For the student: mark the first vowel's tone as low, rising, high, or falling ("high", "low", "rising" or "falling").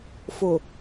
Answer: low